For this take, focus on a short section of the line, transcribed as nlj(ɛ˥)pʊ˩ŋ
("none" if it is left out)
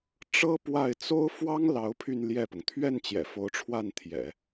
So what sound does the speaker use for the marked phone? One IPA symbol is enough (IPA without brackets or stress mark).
ɛ˥˩